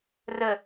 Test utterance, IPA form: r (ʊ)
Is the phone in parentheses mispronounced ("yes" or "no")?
yes